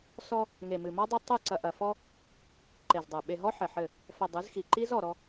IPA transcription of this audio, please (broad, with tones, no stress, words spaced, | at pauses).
sɔ˦ | ŋe˨mɨ˨mɔ˦dˤe˦ tˤɨ˦˨ ǀɐ˨ʔɐ˨fɔ˦ | ǃe˨zdˤɛ˨ ɓe˨ɦɔ˦ ħɘ˨ħɘ˦˨ | fɐ˨ dˤɨ˨˦zxi˨ ǃi˦zɔ˨ɾɔ˦